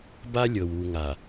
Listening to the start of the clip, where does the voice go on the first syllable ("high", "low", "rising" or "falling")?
high